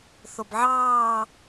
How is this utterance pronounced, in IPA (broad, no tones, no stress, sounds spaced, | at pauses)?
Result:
θ o b ʕ ɑː